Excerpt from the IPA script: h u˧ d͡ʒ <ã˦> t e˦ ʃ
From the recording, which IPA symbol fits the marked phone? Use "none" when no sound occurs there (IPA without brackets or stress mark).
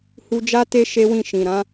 a˦